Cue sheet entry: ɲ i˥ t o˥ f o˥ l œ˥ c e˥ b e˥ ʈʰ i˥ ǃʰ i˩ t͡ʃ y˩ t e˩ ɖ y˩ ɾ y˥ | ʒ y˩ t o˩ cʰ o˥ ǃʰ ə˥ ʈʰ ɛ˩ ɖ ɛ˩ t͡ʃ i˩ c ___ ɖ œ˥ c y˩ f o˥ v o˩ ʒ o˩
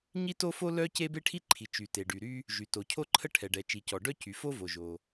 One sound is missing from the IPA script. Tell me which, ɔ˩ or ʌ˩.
ɔ˩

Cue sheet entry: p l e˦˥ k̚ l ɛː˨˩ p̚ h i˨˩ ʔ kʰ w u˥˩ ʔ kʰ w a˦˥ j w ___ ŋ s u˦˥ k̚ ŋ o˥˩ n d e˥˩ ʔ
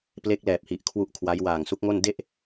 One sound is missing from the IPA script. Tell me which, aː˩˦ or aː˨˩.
aː˨˩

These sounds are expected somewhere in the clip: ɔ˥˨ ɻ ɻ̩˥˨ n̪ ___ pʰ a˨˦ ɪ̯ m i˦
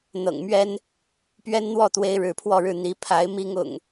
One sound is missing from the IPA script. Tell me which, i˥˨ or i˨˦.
i˨˦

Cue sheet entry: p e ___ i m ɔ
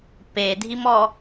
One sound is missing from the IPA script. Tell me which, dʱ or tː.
dʱ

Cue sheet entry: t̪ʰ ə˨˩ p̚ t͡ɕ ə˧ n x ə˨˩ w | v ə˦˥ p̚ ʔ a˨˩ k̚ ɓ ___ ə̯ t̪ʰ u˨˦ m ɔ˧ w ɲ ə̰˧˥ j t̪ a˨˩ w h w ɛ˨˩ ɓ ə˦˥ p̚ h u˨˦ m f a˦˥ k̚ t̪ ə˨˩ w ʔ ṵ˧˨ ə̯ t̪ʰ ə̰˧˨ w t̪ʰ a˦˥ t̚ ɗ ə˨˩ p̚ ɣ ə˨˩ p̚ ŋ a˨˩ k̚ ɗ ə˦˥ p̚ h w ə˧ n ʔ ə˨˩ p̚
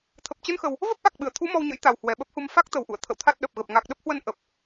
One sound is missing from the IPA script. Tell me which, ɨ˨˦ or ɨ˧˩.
ɨ˧˩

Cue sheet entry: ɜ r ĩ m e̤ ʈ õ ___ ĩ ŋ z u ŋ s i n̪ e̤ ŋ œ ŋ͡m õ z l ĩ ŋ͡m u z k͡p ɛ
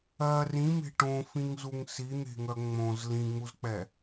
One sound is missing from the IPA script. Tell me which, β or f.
f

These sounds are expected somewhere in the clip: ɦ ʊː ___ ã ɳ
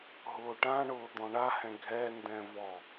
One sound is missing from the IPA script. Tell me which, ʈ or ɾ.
ʈ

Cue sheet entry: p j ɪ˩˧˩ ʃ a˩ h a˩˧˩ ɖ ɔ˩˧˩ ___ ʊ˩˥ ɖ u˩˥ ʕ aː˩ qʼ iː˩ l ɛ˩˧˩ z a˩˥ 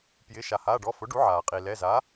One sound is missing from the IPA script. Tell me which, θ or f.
f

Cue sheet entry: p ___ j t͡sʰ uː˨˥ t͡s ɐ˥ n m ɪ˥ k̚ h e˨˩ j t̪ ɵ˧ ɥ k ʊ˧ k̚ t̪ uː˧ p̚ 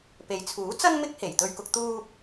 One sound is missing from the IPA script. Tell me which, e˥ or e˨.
e˨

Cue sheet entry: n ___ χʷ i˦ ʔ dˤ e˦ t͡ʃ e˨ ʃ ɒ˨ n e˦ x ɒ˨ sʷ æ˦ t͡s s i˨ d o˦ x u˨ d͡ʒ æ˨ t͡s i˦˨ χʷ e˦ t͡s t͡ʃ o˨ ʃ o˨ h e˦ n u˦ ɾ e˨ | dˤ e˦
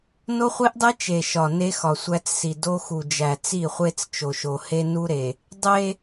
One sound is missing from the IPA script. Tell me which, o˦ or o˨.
o˦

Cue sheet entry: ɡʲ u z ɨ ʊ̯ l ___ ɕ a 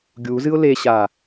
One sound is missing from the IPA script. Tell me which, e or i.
e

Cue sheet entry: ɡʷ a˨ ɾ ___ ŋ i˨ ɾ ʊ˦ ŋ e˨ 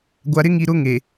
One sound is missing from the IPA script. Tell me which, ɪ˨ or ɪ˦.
ɪ˦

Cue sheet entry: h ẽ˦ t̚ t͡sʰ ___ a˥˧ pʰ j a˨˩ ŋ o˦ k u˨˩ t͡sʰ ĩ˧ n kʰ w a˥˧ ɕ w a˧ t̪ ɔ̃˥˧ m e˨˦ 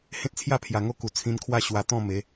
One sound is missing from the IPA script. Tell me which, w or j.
j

